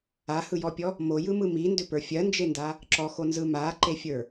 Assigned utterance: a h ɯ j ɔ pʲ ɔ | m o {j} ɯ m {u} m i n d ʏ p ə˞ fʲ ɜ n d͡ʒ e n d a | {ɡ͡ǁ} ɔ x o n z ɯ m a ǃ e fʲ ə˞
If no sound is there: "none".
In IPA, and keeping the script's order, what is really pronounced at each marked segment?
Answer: j, ɯ, ǁ

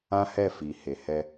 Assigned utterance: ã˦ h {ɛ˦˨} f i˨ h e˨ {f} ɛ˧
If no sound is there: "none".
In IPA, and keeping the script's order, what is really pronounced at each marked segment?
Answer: ɛ˦˨, h

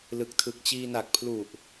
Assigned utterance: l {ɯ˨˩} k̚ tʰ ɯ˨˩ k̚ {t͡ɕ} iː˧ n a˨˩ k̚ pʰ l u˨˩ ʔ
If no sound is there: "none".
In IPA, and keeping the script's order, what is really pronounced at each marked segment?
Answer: ɯ˨˩, t͡ɕ

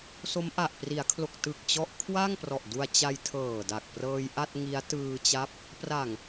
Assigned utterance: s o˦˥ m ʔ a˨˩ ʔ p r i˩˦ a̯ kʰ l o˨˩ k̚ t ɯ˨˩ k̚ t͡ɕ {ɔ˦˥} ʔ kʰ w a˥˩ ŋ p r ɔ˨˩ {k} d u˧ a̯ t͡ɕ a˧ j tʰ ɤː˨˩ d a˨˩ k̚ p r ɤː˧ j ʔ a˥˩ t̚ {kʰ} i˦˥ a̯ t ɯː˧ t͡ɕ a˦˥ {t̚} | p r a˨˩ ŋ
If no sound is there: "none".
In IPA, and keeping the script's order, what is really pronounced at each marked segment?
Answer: ɔ˦˥, ʔ, ŋ, p̚

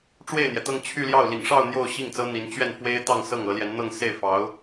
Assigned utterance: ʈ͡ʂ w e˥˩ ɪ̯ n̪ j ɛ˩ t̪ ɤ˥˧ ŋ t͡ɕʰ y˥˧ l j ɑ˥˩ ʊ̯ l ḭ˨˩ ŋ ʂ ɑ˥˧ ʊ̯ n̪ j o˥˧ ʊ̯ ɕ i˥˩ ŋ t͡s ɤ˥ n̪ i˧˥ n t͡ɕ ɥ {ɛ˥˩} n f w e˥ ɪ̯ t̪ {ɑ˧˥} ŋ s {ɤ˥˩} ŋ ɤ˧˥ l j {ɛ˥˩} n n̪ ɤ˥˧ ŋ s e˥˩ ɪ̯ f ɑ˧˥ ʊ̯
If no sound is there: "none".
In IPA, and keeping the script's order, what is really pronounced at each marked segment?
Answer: ɛ˥˩, ɑ˥˧, ɤ˥˩, ɛ˧˥

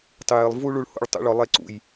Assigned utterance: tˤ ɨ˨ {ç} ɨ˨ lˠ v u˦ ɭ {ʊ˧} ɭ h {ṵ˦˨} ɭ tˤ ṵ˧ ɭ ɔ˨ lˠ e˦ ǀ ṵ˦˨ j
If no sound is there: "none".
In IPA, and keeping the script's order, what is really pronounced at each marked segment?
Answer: j, u˧, ṵ˦˨

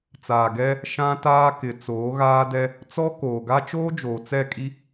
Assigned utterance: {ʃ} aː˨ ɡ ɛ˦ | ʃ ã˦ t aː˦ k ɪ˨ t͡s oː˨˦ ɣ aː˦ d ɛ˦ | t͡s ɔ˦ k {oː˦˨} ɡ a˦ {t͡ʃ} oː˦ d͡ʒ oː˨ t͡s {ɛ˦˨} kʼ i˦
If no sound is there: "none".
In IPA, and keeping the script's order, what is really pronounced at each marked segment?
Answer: t͡s, oː˨, t͡ʃ, ɛ˦˨

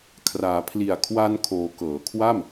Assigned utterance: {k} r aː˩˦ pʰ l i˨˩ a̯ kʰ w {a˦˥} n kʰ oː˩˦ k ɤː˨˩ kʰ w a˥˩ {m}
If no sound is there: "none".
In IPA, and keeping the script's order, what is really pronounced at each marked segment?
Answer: kʰ, a˧, m

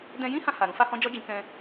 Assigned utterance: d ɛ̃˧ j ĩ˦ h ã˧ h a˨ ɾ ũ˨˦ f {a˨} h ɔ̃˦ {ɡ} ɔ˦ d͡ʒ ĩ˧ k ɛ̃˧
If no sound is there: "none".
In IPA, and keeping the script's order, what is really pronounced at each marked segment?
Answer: a˦, d͡ʒ

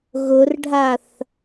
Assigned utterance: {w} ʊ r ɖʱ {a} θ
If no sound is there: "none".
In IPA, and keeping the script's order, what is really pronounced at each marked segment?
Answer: ɣ, a

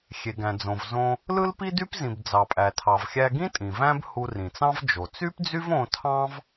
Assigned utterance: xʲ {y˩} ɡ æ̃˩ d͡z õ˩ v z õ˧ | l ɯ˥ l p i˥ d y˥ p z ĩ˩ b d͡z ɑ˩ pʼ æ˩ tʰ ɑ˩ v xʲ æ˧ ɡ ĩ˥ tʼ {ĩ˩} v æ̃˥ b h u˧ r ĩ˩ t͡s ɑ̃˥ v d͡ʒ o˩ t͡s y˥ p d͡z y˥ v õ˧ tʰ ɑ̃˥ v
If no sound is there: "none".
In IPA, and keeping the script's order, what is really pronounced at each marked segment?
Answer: e˩, ĩ˩

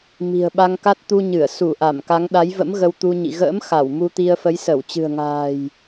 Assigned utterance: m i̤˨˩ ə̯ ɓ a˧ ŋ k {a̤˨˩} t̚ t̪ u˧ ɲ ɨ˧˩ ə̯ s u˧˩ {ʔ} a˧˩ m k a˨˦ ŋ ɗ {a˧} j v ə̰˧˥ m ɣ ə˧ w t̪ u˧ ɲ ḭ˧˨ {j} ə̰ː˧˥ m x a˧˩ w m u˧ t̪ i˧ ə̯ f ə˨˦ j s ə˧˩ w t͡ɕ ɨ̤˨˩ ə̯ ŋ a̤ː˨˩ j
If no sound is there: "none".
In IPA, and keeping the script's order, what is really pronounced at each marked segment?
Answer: a˦˥, ʔ, a˨˦, ɣ

